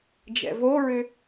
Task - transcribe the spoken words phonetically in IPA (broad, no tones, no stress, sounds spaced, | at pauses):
d͡ʒ ɛ̰ v o ɹ ʏ